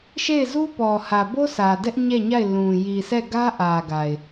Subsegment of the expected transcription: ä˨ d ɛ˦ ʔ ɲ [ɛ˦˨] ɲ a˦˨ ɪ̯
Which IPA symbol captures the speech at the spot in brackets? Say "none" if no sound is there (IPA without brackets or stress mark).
ɛ˦˨